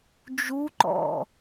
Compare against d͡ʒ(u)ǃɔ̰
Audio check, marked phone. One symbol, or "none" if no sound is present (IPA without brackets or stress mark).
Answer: u